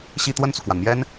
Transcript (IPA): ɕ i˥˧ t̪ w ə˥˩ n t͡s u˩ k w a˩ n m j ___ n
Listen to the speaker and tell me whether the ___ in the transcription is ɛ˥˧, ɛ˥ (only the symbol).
ɛ˥